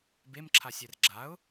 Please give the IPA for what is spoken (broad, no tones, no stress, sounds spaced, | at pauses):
b e m ǁʰ a sʲ ɛ r ɡ͡ǁ a ʊ̯